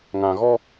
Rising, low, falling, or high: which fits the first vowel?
low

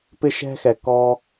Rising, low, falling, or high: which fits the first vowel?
high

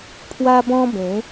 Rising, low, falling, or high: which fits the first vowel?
high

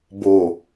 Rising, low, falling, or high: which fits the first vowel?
low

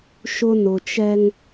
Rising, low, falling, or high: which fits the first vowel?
high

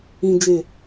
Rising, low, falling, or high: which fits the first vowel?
low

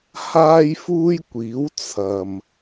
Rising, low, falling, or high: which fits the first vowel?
high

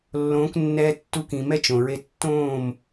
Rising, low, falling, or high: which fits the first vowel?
rising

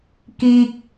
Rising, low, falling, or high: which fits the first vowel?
high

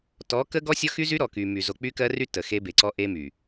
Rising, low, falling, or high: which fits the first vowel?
rising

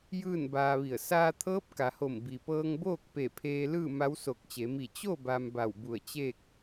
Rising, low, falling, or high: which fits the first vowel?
falling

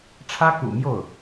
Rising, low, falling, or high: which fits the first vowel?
high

